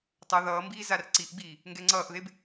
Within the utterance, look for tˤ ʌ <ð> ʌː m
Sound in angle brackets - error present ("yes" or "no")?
no